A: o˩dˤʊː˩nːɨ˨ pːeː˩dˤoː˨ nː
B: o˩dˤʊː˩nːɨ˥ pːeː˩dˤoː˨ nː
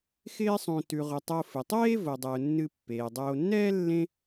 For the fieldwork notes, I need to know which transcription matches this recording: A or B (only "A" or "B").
A